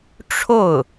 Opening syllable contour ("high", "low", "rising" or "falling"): falling